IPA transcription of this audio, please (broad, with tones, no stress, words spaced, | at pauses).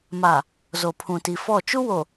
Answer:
ma˨ | zo˨pʰũ˨ti˨fɔ˦˨ t͡ʃu˦wo˨